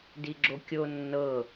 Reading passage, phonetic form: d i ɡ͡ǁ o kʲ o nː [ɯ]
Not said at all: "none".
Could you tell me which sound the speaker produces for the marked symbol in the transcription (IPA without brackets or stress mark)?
ɤ